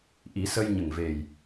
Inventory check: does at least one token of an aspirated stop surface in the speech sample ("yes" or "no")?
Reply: no